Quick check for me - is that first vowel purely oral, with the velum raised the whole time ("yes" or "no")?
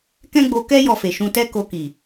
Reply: no